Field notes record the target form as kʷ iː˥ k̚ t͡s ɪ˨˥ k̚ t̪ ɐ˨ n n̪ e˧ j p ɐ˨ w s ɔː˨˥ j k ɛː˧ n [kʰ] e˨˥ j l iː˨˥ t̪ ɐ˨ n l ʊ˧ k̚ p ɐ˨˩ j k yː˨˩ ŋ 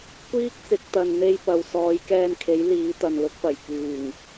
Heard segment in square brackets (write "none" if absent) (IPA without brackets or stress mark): kʰ